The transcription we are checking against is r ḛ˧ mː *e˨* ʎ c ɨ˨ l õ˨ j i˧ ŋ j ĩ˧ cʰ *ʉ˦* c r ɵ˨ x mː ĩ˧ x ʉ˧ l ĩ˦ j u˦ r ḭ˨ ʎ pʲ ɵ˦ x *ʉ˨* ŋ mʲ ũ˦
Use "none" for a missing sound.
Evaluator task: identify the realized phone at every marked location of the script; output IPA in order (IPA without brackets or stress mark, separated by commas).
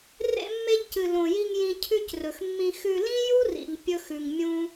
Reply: e˧, ʉ˦, ʉ˨